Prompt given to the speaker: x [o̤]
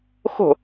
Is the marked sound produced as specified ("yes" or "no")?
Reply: yes